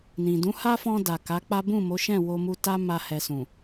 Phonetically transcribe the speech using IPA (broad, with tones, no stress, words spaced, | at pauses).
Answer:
nĩ˨ dũ˨˦ha˦fɔ̃˧ da˨ ka˨˦k͡pa˦ bũ˦˨mo˨˦ʃɛ̃˦˨ wo˧mu˧ta˦ ma˧hɛ˨sũ˨